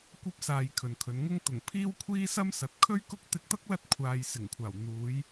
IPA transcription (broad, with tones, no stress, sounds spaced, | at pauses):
kʷ ɐ˧ p̚ s aː˨ j kʰ ɵ˨ n kʰ ɵ˨˧ n ŋ ʊ˥ ŋ t̪ ʊ˨˩ ŋ pʰ iː˥ w kʷʰ iː˥ s ɐ˥ m s ɐ˨˥ t̚ kʰ ɵ˥ ɥ k ʊ˥ k̚ t̪ ɪ˧ k̚ t̪ ɐ˥ k̚ l ɐ˥ t̚ kʷʰ aː˨ j s ɪ˨˩ ŋ kʷʰ aː˨˩ w n̪ uː˨˧ j